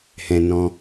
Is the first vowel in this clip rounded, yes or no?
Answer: no